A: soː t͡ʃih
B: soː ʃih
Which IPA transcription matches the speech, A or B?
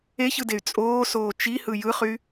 A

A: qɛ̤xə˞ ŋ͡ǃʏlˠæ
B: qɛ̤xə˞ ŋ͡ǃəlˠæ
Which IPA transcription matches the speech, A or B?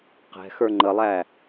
B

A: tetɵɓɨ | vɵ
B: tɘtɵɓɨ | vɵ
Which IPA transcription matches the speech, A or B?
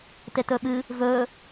A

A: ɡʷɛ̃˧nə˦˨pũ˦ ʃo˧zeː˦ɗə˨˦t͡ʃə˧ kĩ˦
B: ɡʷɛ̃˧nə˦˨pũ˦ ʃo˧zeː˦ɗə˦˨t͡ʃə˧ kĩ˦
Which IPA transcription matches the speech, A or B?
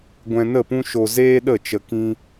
B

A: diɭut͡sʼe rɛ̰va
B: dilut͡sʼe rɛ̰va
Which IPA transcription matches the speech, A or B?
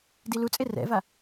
B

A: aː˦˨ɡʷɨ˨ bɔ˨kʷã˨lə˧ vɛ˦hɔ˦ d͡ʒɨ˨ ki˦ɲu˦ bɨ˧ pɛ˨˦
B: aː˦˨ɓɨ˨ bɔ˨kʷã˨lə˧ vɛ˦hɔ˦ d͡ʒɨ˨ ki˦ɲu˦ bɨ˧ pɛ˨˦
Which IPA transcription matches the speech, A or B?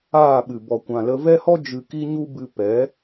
B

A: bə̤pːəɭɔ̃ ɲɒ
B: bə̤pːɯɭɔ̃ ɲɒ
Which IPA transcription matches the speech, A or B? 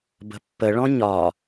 A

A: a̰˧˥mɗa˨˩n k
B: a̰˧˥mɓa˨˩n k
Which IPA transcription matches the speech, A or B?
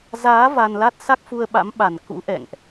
B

